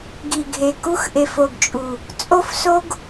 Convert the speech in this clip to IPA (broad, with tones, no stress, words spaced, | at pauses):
ɡi˨ɡʱe˨ ku˦xʔe˨f o˨ɡt͡ʃʼu˨ | t͡sʼo˦fso˦ɡ